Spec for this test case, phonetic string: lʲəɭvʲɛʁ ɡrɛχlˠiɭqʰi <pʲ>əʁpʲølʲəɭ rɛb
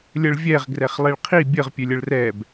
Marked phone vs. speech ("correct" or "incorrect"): incorrect